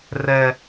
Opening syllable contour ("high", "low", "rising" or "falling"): high